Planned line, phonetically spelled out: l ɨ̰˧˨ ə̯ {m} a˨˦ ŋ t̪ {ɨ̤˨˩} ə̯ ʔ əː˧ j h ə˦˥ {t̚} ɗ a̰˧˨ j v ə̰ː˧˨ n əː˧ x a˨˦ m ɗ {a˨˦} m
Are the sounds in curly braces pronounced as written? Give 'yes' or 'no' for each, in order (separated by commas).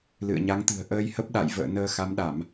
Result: no, yes, no, no